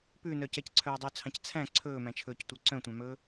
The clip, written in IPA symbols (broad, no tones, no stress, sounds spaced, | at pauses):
p ʉ n œː c ɛ c ǀʰ œː dˤ ɵː t͡sʰ ɑ̃ c t͡sʰ æ̃ ǀʰ ɵː m æ̃ t͡ʃʰ ɵː c tʷ œ ǀ œ̃ tʷ ɑ̃ m ɵː